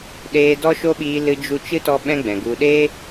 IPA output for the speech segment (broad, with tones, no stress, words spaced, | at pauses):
ɗeː˧dɔ˦ʃo˦ɓiː˧ lɨ˧d͡ʒu˧t͡ʃɨ˦tɔ˧ ɓɛ̃˦ɡ͡bɛ̃˨ɡu˧ ɗe˦